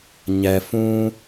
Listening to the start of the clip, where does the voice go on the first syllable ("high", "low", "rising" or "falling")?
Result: low